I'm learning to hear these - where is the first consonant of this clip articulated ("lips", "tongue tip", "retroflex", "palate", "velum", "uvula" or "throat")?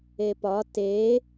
lips